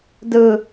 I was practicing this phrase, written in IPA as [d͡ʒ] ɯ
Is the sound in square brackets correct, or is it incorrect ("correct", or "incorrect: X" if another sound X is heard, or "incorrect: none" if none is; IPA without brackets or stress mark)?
incorrect: d